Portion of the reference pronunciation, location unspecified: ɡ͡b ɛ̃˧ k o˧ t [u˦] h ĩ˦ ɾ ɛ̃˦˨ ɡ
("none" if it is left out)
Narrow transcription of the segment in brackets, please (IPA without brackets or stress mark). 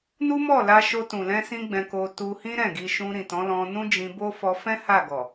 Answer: u˧